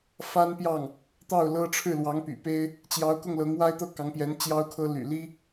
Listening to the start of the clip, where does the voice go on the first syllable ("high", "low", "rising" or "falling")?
high